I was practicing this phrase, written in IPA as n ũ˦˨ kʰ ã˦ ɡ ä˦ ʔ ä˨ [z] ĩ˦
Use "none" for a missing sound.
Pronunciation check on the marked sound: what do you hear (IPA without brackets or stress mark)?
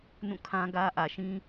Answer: ʃ